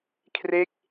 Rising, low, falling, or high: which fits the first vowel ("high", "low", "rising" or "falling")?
falling